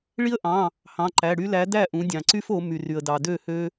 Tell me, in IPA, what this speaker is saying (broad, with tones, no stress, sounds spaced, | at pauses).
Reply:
ɭ i˦ ə̯ ʔ ɑ̃˩˧˩ | h ɑ̃˩˧˩ ǃ æ˩˧˩ ɽ y˦ l æ˨˥ d æ˥˩ ʔ ũ˩˧ dʲ ɑ̃˩ ǀ y˦ f o˩˧ m y˩ r y˩ ə̯ d ɑ˩ d ø˥˩ h ø˦